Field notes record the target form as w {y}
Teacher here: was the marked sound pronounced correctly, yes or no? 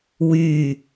yes